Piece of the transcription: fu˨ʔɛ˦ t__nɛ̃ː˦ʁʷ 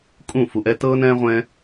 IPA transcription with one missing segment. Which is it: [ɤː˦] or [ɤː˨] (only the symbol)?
ɤː˦